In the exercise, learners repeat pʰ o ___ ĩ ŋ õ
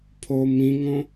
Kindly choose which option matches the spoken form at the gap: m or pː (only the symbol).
m